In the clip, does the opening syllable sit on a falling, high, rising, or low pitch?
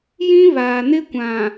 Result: high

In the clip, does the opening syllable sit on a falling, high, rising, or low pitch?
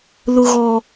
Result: low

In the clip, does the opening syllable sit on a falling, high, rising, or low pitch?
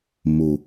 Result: low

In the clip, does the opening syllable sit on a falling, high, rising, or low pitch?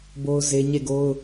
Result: high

